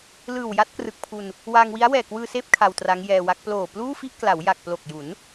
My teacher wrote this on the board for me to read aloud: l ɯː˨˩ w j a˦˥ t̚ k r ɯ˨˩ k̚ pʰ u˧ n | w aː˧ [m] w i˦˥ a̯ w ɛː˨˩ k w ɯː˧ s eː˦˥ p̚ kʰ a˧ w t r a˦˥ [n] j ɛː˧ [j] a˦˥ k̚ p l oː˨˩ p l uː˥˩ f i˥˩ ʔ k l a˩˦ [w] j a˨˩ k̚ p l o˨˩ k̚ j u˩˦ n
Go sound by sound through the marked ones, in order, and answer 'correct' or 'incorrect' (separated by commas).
incorrect, incorrect, incorrect, correct